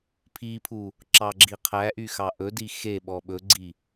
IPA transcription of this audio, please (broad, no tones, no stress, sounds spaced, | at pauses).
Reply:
pʰ i pʰ u | ǁ ɑ ɡ͡ǁ i qʰ æ ʔ y x ɑ ʔ ɵ d i x e ɓ ɔ ɓ ɵ ɡ͡ǀ i